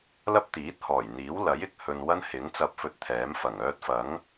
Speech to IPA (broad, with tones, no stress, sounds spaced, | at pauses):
l ɐ˥ p̚ t̪ iː˨˥ t̚ h ɔː˨˩ j n̪ iː˨˥ w l ɐ˨˥ j ɪ˨ k̚ h ɵ˨ n w ɐ˥ n h ɪ˨˥ ŋ t͡s ɐ˧ p̚ f ɵ˧ t̚ t̪ʰ ɛː˨˥ m f ɐ˨˩ ŋ œː˥ t̚ f ɐ˨˥ ŋ